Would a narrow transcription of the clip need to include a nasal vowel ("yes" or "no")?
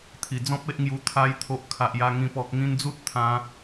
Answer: yes